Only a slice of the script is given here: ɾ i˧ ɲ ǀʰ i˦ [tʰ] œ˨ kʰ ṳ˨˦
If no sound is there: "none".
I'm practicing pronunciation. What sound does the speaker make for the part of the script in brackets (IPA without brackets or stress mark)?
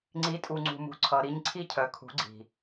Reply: cʰ